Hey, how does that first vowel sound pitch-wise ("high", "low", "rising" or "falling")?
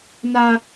high